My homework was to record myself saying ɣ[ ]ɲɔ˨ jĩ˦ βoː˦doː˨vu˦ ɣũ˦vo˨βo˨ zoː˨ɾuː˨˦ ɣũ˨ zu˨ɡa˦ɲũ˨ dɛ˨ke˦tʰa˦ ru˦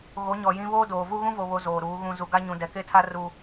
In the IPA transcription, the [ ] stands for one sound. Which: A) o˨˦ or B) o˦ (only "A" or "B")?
A